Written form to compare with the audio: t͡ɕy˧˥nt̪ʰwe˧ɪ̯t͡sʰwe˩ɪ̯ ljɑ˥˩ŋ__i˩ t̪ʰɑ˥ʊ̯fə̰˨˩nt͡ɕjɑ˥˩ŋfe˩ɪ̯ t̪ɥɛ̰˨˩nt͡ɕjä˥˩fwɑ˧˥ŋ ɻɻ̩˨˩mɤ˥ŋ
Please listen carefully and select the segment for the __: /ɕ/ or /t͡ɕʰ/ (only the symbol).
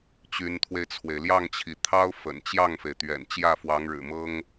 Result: t͡ɕʰ